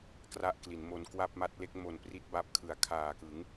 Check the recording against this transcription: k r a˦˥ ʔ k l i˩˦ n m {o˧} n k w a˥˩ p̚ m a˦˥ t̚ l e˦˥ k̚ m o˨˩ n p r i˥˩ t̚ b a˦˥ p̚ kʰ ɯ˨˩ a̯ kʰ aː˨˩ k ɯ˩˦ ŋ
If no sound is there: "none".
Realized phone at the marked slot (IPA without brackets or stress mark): o˧